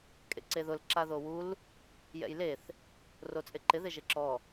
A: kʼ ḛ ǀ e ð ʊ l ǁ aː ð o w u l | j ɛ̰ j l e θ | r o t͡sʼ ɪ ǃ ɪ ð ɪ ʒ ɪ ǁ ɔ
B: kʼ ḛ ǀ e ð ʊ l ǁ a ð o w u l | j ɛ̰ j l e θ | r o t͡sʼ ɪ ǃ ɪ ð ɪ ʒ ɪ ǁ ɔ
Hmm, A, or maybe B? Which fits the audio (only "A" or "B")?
B